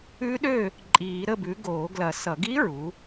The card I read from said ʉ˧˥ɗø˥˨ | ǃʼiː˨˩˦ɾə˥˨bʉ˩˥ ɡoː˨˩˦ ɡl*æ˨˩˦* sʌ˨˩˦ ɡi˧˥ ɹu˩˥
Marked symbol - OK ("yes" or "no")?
no